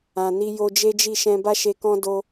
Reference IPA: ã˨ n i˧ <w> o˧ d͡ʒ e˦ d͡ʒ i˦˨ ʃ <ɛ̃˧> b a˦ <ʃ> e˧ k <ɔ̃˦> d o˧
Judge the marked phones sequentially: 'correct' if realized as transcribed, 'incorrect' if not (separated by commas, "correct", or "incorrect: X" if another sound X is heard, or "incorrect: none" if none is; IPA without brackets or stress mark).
incorrect: j, correct, correct, correct